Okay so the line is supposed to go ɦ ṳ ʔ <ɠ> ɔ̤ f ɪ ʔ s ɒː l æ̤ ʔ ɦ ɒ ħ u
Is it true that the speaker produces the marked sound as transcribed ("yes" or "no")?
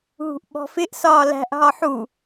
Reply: no